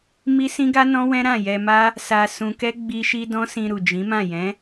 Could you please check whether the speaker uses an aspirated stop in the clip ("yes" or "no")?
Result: no